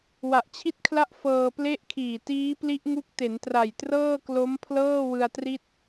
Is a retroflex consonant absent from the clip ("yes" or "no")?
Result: yes